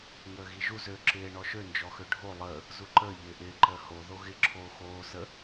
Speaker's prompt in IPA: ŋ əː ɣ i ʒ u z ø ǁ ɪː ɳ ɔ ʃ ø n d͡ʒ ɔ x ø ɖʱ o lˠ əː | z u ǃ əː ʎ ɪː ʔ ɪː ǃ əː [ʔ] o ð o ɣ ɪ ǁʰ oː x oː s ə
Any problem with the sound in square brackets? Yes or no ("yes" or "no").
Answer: yes